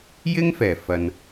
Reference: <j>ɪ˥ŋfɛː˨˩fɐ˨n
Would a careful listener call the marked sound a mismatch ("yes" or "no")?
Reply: no